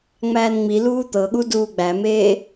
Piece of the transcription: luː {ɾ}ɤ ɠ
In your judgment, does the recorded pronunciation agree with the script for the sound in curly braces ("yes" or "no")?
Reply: no